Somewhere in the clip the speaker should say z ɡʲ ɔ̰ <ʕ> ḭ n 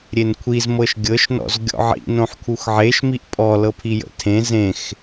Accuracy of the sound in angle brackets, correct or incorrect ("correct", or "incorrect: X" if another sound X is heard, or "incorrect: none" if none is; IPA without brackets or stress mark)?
correct